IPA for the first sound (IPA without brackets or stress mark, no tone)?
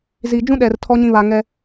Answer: z